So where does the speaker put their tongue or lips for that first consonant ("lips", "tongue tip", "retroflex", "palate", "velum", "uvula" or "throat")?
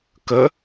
velum